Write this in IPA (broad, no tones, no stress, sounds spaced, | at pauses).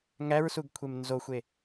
ŋ æ ɹ s u ɡ kʷʰ e m n z o xʷ e